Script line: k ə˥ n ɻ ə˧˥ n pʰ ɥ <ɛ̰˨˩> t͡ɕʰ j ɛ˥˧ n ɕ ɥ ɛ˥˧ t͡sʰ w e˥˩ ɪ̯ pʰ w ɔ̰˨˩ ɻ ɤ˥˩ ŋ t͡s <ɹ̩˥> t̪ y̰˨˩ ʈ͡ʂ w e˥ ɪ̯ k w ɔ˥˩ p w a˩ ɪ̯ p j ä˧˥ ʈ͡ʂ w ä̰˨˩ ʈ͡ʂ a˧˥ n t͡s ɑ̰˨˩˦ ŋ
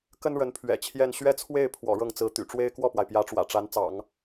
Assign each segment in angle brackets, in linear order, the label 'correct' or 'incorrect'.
correct, incorrect: ɹ̩˧˥

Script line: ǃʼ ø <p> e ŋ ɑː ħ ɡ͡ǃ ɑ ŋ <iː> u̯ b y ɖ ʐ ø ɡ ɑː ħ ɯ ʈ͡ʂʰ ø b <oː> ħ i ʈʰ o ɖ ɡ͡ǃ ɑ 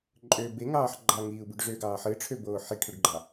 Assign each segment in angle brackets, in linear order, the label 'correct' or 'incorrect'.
incorrect: b, correct, correct

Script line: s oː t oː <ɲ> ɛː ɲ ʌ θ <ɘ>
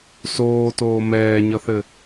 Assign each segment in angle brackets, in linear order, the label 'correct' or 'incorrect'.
incorrect: m, correct

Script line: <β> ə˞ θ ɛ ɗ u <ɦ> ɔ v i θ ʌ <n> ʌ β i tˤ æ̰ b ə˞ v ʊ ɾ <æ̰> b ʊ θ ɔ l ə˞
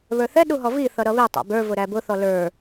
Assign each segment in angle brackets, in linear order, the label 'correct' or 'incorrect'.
correct, correct, incorrect: ɾ, incorrect: æ

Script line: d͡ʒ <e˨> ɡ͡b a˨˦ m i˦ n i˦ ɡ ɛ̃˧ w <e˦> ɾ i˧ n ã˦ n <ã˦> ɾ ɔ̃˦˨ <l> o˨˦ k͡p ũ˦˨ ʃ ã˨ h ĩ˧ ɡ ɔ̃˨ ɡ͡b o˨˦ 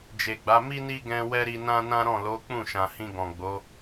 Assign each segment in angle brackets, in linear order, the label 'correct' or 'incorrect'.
correct, incorrect: ɛ˦, correct, correct

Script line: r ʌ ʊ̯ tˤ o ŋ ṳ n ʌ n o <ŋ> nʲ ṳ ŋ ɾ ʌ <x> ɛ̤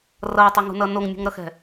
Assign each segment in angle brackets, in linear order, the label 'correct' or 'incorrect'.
correct, correct

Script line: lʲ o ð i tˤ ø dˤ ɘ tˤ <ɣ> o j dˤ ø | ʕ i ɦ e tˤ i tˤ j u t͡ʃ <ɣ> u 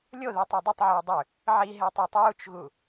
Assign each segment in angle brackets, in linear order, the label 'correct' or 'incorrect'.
incorrect: ʕ, correct

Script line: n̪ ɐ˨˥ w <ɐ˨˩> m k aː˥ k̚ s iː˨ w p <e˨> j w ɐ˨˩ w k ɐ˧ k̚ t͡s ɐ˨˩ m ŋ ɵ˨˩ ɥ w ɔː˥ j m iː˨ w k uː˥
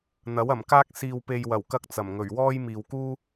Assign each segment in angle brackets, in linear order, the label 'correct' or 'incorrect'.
correct, correct

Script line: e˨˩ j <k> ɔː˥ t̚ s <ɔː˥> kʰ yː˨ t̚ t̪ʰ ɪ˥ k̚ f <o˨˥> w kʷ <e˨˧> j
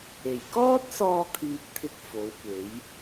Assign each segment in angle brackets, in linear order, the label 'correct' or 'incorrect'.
correct, incorrect: ɔː˧, correct, incorrect: e˨˥

